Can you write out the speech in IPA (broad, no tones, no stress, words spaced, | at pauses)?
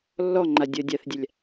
lːɔŋ͡ǃa dʲɐːdʲaθdʲalʲ